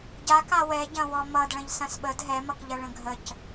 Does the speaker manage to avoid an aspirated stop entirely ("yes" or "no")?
yes